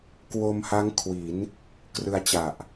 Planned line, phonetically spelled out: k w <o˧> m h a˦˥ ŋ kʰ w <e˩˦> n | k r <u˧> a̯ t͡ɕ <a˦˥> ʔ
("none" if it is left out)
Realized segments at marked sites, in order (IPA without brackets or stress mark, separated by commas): o˧, i˩˦, ɯ˧, a˨˩